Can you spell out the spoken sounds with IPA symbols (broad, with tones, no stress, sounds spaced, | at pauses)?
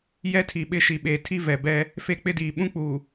j ɛ˦ tʰ i˨ ɓ ɪ˦˨ ʃ i˨ ɓ eː˨ tʰ i˦ v ɛ˨ b ɛ˦ | f e˦ k͡p ɪ˦ d iː˨ ɓ ũ˦ k͡p uː˨